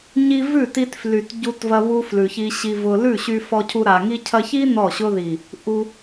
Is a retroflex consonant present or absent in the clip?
absent